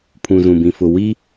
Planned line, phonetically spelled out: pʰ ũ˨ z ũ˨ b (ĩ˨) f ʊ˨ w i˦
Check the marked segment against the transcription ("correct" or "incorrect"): correct